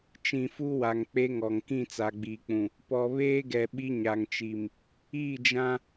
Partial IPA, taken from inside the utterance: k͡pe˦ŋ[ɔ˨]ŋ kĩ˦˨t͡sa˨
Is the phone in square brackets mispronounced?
no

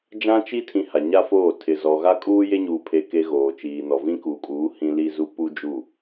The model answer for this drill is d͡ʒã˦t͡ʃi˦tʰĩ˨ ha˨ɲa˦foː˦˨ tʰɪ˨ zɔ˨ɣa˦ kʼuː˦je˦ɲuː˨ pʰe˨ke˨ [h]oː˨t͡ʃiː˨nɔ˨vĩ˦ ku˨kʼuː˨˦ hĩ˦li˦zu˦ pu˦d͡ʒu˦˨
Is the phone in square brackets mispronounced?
yes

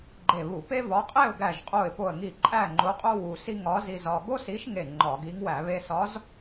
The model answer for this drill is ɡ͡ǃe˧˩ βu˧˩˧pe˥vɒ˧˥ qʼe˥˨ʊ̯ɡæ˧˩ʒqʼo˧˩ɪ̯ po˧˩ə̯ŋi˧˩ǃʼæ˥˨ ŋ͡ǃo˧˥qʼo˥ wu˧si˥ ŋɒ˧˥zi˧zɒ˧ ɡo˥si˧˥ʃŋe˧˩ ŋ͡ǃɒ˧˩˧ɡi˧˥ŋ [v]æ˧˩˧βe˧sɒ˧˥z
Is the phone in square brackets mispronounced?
yes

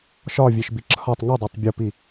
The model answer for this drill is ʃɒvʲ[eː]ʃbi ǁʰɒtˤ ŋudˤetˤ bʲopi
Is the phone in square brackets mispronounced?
yes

